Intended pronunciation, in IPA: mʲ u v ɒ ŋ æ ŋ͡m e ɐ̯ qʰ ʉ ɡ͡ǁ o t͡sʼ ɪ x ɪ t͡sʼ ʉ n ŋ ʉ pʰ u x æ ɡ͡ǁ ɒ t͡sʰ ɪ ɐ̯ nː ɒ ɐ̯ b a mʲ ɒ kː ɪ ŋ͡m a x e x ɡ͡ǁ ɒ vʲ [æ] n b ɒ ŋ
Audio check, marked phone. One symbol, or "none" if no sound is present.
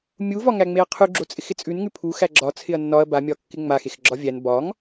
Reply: æ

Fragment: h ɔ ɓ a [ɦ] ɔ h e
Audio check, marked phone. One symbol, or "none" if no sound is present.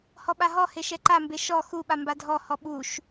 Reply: ɦ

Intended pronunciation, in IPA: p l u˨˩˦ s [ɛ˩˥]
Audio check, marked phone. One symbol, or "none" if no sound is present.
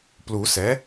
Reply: ɛ˩˥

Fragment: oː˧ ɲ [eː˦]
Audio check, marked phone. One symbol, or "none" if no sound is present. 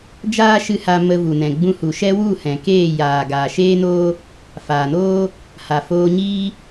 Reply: iː˦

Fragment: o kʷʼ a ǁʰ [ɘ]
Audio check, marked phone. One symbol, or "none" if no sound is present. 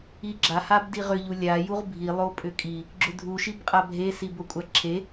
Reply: e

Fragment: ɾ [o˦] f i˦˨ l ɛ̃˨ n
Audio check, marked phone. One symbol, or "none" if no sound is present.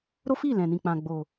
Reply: o˦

